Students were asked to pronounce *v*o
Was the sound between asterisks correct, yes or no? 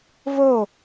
yes